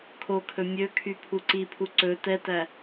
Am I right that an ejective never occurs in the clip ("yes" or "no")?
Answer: yes